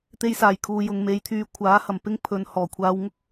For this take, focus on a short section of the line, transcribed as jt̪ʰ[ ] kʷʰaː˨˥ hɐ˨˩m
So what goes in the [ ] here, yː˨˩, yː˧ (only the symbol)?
yː˧